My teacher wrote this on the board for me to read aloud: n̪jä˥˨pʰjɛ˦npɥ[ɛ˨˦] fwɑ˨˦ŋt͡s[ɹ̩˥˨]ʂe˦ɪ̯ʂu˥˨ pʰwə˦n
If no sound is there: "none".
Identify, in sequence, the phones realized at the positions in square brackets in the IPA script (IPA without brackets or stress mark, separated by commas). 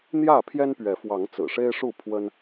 ɛ˨˦, ɹ̩˨˩